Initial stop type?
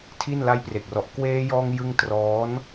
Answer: aspirated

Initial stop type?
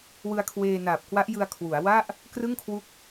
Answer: aspirated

